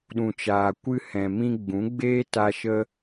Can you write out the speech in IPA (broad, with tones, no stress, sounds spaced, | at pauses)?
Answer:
ɗ ũ˨ t͡ʃ aː˨ kʷ ɨ˧ h ɛ̃˨ m ĩ˧ ɡ͡b ũ˨˦ ɡ͡b eː˦ t a˧ ʃ ə˦